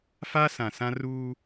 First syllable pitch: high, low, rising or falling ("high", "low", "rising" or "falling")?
high